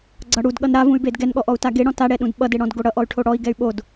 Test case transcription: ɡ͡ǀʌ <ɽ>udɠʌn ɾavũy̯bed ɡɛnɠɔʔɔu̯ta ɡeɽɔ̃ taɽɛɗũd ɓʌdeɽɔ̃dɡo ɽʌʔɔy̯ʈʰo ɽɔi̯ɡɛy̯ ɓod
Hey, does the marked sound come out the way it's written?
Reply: yes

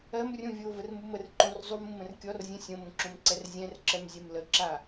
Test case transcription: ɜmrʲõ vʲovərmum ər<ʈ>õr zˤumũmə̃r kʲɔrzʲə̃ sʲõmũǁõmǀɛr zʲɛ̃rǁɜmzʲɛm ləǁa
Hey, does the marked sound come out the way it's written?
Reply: no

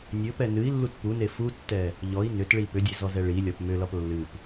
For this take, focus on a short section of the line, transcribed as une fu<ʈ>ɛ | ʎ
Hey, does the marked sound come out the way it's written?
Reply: no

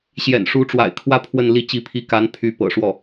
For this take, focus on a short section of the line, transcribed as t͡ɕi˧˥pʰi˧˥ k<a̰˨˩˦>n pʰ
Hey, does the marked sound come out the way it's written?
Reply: no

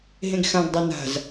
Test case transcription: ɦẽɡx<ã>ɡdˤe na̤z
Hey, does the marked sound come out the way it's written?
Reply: yes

